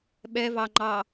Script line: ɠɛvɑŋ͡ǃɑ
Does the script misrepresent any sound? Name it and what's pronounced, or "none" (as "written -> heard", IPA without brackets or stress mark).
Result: ɠ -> ɓ